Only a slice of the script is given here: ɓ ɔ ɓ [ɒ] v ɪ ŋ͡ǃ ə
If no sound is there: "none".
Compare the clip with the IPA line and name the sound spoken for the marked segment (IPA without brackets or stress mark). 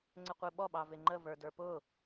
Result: ɑ